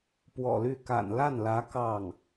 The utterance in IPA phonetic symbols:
p w ɔ̰˨˩ l y˥˩ k a̰˨˩ n l a˥˩ n l ä˧˥ k ɑ˥˩ ŋ

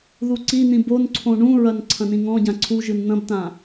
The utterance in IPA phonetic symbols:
ð u ǀ i n̪ ĩ b o n ǀʰ õ ɳ ũ ɹ ɐ n ǀʰ ɐ̃ n ĩ ŋ ɔ̃ ɟ ã ǀʰ u ʒ ɨ n n̪ ɐ̃ b t ã

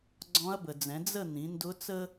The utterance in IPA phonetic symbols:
ɡ͡ǀ ɔ̃˧˥ ɐ̯ b ə˨ d͡z ɛ̃˩˥ d͡z ə˥˨ n̪ ĩ˩˥ n d ʊ˧˥ t͡s ə˥

